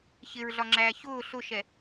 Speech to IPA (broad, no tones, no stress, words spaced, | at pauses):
çɪɹɮɒŋ͡ǁæː çʊː ɬʊʃɛ